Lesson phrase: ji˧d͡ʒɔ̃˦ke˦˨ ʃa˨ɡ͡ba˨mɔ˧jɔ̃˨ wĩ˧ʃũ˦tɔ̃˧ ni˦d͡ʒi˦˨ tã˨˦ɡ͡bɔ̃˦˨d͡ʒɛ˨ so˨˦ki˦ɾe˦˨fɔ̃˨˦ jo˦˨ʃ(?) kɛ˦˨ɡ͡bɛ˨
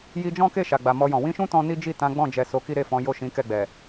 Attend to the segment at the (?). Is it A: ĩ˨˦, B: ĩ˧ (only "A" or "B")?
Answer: A